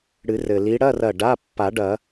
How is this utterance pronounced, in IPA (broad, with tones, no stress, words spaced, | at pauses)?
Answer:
ɽɨ˨˩˦rɘ˩ li˨˦ɽɐ˧˥˧rɐ˧˩ ɖa˧˥˧ pːa˨˩˦ɖɐ˨˩˦